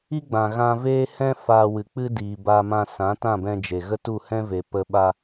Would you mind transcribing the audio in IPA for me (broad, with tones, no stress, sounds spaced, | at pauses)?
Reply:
i˦ ɡ͡b ã˨ ɣ ã˧ v eː˦ h ɛ̃˦ f aː˧ w ɨ˨ k͡p ɨ˦ d iː˨ b aː˧ m ã˧ s ã˨˦ t ã˦˨ b ɛ̃˧ d͡ʒ e˨ ɣ ə˦ t u˦˨ h ɛ̃˦ v e˨ p ə˧ ɓ a˧